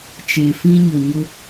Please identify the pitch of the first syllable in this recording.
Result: low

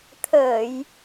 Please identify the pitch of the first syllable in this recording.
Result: low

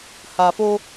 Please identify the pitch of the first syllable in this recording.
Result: low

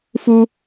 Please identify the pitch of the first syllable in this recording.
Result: high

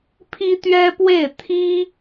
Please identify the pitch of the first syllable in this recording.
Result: high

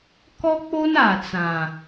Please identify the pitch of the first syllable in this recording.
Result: high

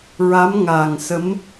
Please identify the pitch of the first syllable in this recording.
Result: rising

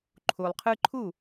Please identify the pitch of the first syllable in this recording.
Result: low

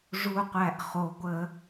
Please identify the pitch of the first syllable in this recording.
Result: low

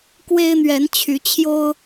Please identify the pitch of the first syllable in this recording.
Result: high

